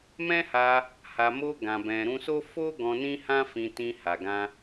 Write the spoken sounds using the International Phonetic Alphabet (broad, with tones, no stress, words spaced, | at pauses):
mɛ̃˦ha˧ | ha˨mo˧ ɡã˨bɛ̃˨ɾũ˧so˦ fo˦ ɡɔ̃˧ nĩ˦hã˦fĩ˧ tĩ˧ha˨ɡã˧